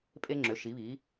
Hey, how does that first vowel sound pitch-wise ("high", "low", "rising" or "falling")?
high